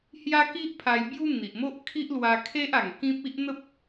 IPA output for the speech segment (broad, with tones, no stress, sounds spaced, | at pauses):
h j a˦ k i˦ ʔ pʰ a˧ j b j u˦ n̪ i˨ ʔ m o˦ ʔ kʰ i˦ ʔ l w a˧ kʰ e˦ ʔ a˨˩ ŋ k ĩ˦ p̚ i˦ ʔ n̪ ə˦ p̚